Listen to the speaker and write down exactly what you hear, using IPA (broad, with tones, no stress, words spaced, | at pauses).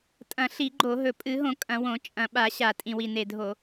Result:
tʼɐ̃˧˩˧ ɬi˧˩˧ɡ͡ǃo˧˩˧ɦɵ˨˩ pʼɨ˧˩˧ɦõ˧˩˧ kʼɐ̃˧˩˧wõ˧˩˧ t͡ʃʼɐ̃˨˩ɓa˧˩˧ɕa˨˩ tʼĩ˨˩wi˨˩ ne˨˩dʱo˧˩˧